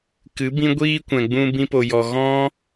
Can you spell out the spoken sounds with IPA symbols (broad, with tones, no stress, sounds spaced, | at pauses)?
k ɨ˨˦ b ĩ˦ ɡʷ iː˦ kʷ ɛ̃˨ ɡ͡b ũ˧ b ĩ˧ p o˨ j ɔ˨ ɣ ɔ̃˦